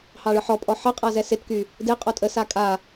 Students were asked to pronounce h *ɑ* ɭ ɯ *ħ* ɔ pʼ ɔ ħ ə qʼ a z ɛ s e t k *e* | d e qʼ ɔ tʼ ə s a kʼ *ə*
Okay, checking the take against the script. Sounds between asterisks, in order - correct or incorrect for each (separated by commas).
correct, correct, incorrect, incorrect